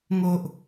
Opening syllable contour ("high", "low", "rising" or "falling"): low